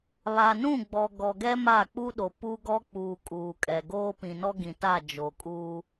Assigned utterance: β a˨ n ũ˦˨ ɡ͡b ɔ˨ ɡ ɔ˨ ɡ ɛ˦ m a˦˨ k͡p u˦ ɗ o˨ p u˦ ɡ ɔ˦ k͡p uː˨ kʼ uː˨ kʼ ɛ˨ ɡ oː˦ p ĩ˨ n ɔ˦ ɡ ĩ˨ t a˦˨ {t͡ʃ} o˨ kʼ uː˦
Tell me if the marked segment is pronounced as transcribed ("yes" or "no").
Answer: no